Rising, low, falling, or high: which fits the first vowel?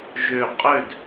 falling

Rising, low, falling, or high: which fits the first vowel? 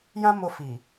high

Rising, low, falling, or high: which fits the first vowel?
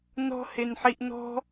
high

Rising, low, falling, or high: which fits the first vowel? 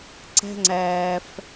high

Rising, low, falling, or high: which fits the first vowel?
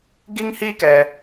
high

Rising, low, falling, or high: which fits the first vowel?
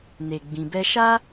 low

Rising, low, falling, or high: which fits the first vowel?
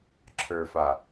low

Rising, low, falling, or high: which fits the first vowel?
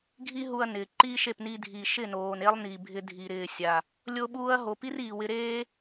high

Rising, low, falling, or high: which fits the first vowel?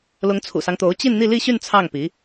rising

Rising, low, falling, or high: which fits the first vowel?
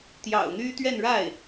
low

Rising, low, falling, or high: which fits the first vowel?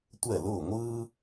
falling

